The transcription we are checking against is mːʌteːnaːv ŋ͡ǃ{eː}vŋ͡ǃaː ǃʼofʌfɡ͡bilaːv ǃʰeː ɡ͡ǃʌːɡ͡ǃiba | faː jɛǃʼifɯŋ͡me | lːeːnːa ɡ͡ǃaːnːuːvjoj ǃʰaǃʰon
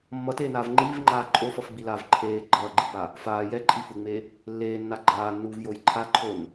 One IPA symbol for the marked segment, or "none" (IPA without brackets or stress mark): iː